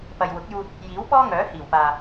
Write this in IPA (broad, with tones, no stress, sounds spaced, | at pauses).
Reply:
p ɐ˨ j w ʊ˨˥ k̚ j uː˧ t̚ | j iː˨˥ w p ɔː˥ ŋ œː˨˥ h iː˨˩ w p aː˨